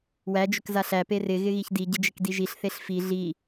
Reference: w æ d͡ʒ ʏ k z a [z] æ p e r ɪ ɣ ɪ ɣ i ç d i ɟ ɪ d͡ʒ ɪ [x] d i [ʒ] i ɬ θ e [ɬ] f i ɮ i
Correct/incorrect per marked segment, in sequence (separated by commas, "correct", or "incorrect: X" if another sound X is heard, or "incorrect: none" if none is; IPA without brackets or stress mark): incorrect: ɬ, incorrect: k, correct, correct